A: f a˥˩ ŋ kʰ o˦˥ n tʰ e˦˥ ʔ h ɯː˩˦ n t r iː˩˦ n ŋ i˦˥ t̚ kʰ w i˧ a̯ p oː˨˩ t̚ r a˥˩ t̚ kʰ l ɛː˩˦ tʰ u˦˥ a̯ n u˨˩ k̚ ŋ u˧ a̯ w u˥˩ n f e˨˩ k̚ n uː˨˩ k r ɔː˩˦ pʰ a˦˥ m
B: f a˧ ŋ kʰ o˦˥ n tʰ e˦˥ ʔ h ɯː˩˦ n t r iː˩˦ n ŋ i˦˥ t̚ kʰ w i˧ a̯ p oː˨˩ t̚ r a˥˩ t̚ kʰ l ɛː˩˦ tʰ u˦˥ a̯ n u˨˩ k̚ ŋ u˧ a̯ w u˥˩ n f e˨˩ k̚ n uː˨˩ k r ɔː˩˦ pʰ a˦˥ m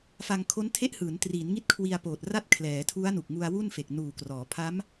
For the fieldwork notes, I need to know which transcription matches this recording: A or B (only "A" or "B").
B